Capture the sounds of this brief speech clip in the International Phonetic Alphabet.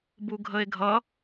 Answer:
b u ɡʱ ə e̯ ɡʱ ʌ

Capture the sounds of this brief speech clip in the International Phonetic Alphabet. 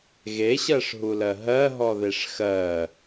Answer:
ɣ e ɕ ɜ ʂ ɦ u l ɜ ɦ ɜ ɦ ɔ ð e ʂ x ɜ

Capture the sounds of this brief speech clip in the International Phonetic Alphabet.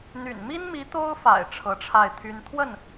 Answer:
n̪ y̰˨˩ n m i˥ n m i˧˥ t̪ o˥ ʊ̯ f a̰˨˩ ɪ̯ ʈ͡ʂʰ ɤ˧˥ ʈ͡ʂʰ a˥˩ ɪ̯ t̪ʰ y˥ n t̪ʰ w ə˥˩ n

